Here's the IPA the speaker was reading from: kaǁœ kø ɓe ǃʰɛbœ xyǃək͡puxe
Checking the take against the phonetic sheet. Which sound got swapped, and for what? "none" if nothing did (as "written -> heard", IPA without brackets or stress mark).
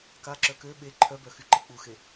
ɛ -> œ